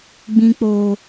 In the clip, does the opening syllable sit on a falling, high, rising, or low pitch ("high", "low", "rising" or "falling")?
low